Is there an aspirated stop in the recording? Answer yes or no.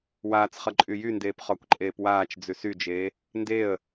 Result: no